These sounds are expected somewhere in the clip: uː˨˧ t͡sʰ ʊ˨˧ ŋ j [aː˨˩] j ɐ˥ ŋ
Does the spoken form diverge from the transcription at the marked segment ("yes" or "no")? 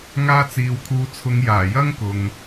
no